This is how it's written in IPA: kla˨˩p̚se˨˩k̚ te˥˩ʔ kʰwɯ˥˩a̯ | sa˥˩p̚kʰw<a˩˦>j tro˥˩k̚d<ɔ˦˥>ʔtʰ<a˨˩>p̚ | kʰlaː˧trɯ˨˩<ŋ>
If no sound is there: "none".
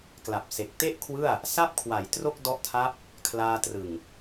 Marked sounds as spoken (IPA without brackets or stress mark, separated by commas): a˩˦, ɔ˦˥, a˦˥, ŋ